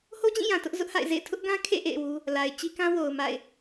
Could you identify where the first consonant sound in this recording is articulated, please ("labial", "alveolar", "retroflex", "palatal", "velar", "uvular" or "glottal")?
glottal